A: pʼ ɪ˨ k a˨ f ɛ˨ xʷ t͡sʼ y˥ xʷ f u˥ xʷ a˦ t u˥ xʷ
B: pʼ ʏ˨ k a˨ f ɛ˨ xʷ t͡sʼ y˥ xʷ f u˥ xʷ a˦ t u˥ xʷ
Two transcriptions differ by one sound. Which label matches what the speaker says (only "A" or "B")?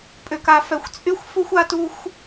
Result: B